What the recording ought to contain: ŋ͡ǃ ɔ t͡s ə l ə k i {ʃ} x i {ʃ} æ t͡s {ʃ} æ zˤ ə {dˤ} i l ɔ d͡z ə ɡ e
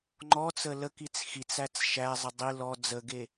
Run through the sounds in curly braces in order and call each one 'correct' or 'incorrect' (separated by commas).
incorrect, incorrect, correct, correct